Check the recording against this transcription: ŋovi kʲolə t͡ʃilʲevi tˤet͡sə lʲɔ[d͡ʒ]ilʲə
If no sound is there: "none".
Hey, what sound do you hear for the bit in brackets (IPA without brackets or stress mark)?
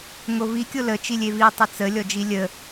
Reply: d͡ʒ